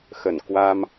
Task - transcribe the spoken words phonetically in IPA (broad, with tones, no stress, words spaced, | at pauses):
xə˧˩n kwa˧m